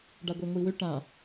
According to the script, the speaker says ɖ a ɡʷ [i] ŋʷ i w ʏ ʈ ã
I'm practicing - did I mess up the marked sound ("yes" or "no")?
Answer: yes